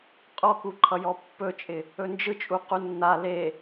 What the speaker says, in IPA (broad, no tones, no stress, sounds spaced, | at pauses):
qʼ ɔ k u ǃʰ ʌ j ɔ pː ɵ t͡ʃʼ ɪ | ɵ n d͡ʒ ɯ t͡ʃʼ u q u nː a l e